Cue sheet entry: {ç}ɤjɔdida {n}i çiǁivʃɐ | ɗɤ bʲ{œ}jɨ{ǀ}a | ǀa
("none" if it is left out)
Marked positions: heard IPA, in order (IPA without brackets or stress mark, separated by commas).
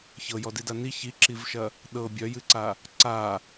ç, n, œ, ǀ